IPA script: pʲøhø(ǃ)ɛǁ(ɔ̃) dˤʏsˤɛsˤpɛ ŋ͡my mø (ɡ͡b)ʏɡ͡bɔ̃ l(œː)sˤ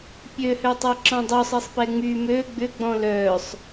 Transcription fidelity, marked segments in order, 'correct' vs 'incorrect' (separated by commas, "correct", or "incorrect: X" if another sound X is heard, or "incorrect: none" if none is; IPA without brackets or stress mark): incorrect: tˤ, correct, correct, correct